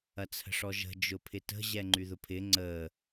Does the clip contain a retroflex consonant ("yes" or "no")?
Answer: yes